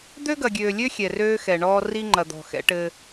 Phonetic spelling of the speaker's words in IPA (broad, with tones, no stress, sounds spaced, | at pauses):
d̪ ø˦ ɡ ɐ˨ ɡʲ øː˨ lʲ ø˦ xʲ ɛ˨ r øː˦ x ɛ˨ ɳ ɔː˦ r i˦ ŋ͡ǃ ɐ˨ d̪ ɔ̤˨ x ɛ̰˦ ʈ ɘ˦